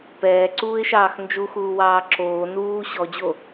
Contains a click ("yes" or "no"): yes